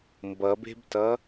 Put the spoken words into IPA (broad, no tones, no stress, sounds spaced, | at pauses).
m b ʌ b e̤ b t ʌ